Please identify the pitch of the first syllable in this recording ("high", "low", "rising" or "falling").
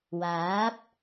rising